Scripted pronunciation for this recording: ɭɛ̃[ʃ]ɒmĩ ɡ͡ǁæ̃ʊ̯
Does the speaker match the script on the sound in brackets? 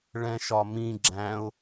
yes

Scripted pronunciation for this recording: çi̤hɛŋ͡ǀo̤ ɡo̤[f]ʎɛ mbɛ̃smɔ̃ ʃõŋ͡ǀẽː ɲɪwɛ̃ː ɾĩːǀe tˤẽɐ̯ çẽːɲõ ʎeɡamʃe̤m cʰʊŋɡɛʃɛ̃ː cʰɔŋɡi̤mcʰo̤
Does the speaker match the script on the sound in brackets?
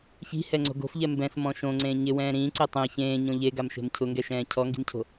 yes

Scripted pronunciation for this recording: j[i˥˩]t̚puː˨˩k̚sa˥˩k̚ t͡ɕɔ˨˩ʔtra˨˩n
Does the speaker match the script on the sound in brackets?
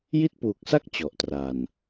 yes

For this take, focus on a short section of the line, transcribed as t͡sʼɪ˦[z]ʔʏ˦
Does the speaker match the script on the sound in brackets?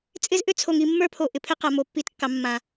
yes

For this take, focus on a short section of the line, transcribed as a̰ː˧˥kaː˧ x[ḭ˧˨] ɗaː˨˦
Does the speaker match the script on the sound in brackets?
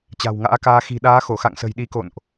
no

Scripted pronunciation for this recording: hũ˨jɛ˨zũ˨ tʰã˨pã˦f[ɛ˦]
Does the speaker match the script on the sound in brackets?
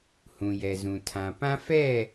no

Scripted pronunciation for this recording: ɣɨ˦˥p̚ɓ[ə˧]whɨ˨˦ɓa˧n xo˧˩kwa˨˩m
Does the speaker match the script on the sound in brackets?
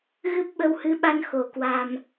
yes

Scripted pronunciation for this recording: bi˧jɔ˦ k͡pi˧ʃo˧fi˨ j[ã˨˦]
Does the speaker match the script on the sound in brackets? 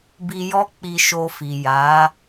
no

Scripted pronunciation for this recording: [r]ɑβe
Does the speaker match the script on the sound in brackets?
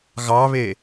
no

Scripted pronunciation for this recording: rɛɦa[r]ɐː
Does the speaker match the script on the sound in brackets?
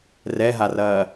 yes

